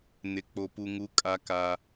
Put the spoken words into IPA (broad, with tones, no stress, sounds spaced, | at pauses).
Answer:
n ɪ˨ k͡p o˨ p u˨ ŋ u˨˦ kʼ a˦ k a˦